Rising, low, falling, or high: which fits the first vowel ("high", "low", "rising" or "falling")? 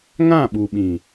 falling